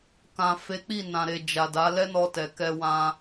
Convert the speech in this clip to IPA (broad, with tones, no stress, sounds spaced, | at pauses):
k ã˨ f e˨˦ k͡p i˦˨ n ã˨ ɾ e˨ d͡ʒ a˨ d a˨˦ l ɛ˦ n ɔ˧ t ɛ˨ k ɛ˧ w ã˧